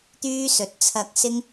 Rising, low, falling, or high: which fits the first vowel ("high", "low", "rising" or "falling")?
high